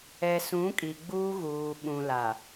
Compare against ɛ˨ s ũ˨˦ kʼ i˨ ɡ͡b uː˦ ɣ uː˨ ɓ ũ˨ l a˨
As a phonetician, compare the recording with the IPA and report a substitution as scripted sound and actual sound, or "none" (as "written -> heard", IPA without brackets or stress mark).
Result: none